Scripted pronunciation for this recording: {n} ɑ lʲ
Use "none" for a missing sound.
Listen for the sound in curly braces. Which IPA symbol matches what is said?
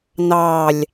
n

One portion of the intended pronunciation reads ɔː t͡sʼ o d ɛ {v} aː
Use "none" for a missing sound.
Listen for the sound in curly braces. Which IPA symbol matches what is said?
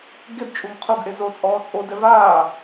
v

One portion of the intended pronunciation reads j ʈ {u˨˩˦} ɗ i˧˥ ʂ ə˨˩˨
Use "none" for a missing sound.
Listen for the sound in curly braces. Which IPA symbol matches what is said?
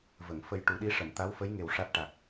u˨˩˦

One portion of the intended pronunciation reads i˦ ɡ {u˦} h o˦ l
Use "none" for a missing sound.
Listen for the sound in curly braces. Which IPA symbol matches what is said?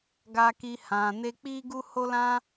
u˦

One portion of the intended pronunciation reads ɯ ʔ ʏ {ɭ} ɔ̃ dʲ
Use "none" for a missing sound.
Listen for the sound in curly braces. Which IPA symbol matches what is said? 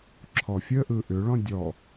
ɭ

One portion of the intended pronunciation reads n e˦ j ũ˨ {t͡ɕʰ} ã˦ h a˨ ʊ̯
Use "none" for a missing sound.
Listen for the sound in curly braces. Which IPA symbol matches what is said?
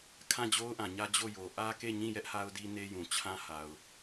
t͡ɕʰ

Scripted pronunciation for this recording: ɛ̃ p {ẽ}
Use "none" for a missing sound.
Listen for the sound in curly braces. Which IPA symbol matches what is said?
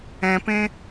ẽ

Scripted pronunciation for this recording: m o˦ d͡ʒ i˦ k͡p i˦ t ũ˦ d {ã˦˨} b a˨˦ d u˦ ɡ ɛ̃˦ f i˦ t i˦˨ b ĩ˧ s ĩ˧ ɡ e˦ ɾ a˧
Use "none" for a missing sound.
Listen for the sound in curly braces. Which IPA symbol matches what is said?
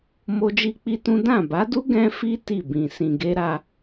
ã˦˨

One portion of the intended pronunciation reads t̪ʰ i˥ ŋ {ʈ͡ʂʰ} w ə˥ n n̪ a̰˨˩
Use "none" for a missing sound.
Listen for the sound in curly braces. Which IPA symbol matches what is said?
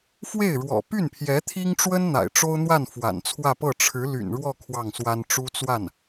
ʈ͡ʂ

